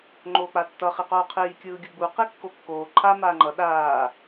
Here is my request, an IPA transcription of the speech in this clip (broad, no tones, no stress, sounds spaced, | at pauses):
ŋ͡ǃ oː k͡p a tː ʌ χ i q oː qʰ iː kʲ ɯː ɡʲ ɯ ɡ͡b u q i kː o kː oː ǃʰ a m aː ŋ͡ǃ ʌ ɗ aː